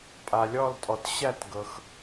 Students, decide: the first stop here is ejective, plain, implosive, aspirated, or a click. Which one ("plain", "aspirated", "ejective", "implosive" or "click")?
ejective